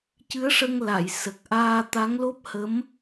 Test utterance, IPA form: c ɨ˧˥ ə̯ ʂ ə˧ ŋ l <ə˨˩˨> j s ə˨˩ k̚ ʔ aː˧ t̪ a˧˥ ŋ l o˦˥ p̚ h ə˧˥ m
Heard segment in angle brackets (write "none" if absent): a˨˩˨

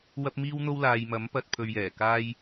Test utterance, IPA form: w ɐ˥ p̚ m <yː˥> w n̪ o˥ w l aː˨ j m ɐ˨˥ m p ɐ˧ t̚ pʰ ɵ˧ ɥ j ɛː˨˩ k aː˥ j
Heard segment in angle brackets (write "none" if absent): iː˥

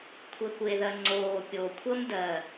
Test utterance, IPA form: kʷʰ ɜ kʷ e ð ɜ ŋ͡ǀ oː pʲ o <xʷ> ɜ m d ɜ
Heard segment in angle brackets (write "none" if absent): kʷʰ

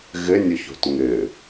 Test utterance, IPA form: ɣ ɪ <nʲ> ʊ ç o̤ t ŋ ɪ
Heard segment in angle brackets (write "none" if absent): nʲ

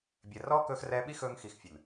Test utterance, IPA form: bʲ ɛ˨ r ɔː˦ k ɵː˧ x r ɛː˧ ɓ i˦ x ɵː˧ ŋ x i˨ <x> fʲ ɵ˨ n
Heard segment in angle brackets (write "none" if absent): x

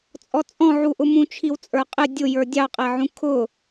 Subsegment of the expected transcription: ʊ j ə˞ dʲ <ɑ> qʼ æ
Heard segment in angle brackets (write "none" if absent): ɑ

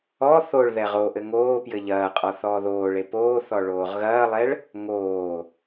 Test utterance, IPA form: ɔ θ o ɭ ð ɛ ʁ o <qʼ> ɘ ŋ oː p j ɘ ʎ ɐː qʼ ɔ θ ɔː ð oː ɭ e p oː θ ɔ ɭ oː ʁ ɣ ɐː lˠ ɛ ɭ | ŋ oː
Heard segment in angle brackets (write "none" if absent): ʔ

